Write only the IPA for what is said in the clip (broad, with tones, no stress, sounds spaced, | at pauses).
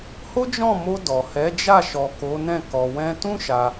h o˦ d͡ʒ ɔ̃˦˨ m o˧ d ɔ˨ h ɛ˨˦ d͡ʒ a˦˨ ʃ ɔ˨ k o˨˦ n ɛ̃˦˨ k ɔ˨ w ɛ̃˧ t ũ˦ ʃ a˧